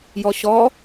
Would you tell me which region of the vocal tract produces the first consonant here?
palate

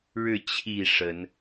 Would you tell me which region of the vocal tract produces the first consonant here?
retroflex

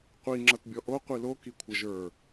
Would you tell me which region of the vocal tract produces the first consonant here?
uvula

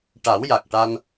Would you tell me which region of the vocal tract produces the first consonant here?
retroflex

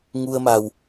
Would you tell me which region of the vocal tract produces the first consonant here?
velum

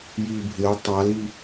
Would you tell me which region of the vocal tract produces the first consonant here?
palate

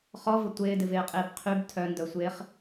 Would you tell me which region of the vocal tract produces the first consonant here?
uvula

